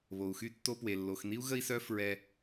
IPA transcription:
β o˩ u̯ x y˥ tː o˦ p w e˩ lː o˩ x n i˥ u̯ ɣ ə˦ i̯ s œ˦ f ɹ ɛ˨

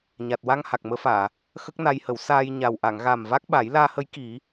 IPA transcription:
ɲ a˨˩ t̚ w a˧ ŋ h a˨˩ k̚ m əː˧˥ f aː˨˩˨ | x ə˦˥ k̚ n a˧ j h ə˨˩˦ w s aː˧ j ɲ a˨˩ w ʔ a˨˩˨ ŋ ɣ a˨˩ m v a˦˥ k̚ ɓ a˨˩˦ j l aː˧ h ə˧˥ j k i˨˩˦

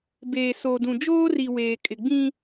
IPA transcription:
b eː˨ s o˨ d ũ˨ d͡ʒ oː˦ r i˨ w eː˨ kʼ ɪ˨ ɡ͡b ĩ˦

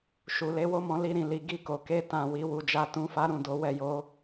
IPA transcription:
ʃ u˨ l e˨˦ w o˦ m ɔ̃˧ l i˧ ɾ ĩ˨ l i˨ ɡ i˧ k o˨ k e˧ t ã˨ w i˨˦ w u˧ d͡ʒ a˦ t ũ˧ f a˦ ɾ ũ˦˨ d o˨˦ w ɛ˦˨ j o˧

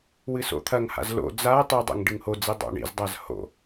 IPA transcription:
w ɨ s o̰ t̪ʰ ɐ ŋ h a̰ z l o̰ d͡z a ɐ̯ tˤ i dˤ ɛ̰ ŋ ɖ ɨ ŋ h o d͡z i dˤ o̰ ɳ ḭ z dˤ a z h o̰

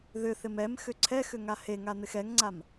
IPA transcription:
ð ʏ θ ɪ m ɛ m x ʏ ǀʰ ɛ x ʏ ŋ a h e ŋ a n̪ ɪ x ɛ ŋ ŋ͡ǀ a m

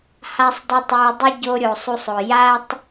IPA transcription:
h a˦ sˤ dˤ ə˦ tˤ ə˞˧ dˤ ə˦ ɟ o˧ ɾʲ o˨ sˤ u˧ sˤ o˨ j a˦ tˤ

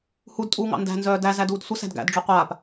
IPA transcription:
h u d tʼ uː ŋ ɑ̰ n d æ̤ n z œː d æ z æ d uː d sʷ ə s æ̤ d ɡ æ̰ d ɖ͡ʐ œ qʷ aː p

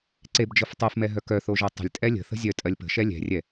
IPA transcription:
ǀ e b d͡ʒ ɤ f tˤ y f m ɛ ɦ œ k œ θ o ʒ ɤ tˤ ə̤ lʲ tʼ ɛ lʲ ə̤ θ ə̤ zʲ œ tʼ ɜ lʲ p ə̤ ʃ ɛ lʲ ɛ̤ rʲ ɛ

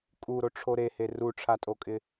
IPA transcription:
kʼ u ɾ o ʈ͡ʂʰ o ɾ e h e r u ʈ͡ʂʰ a tʼ o kʼ ɪ

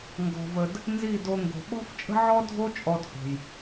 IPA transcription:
ŋ ɡ ɔ̤˨ v ə˨ d | n z i˦˨ d o˧ ŋ ɡ o̤˨ ɓ ɔ̤˦ f t͡ʃʼ ə̤˦ ʕ ɔ˦ dʱ o˦ t͡ʃʼ ɔ˦ d h o̤˨ j

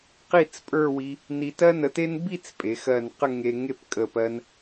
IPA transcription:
q i˥˧ t͡s pʼ ə˞˥˧ w i˧ | n i˧ t ɜ˥ n ə˧ t e˥ n b i˥˧ t͡s pʼ e˩˧ x ɜ˧˩ n q ə˥˧ ŋ e˧ ŋ e˥˧ p kʼ ə˧˩ p ɜ˧ n

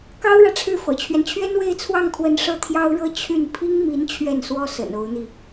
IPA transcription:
k ɑ˥ ʊ̯ ɻ ä˨ ʈ͡ʂʰ ɻ̩˥˩ f ɤ̰˨˩ t͡ɕʰ ɥ ɛ˦ n t͡ɕʰ ɥ ɛ˥ n w e˥˧ ɪ̯ t͡sʰ w ɑ˥˩ ŋ kʰ w ə˧˥ n ʂ ɤ˥˩ t̪ʰ j ɑ˥ ʊ̯ ɻ ɤ˥ t͡ɕʰ y˥˩ n pʰ i˥ ŋ m i˧˥ n t͡ɕʰ ɥ ɛ˥˩ n s w ɔ˥ s ə̰˨˩ n o˧˥ ʊ̯ n̪ i˧

